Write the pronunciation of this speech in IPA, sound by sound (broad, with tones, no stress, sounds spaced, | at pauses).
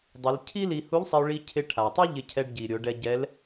dˤ ɪ˩˧ l cʰ i˥ l i˧ h u˧˥ ʎ sˤ ɪ˧ o̯ ɭ i˧ cʰ ɪ˧ ʈʰ a˩ tˤ u˥ ʎ ɪ˧ cʰ ɛ˧ ɖ ɟ i˩ ɾʲ o˩˧ ɖ ɛ˧ ɟ ɛ˧˥ l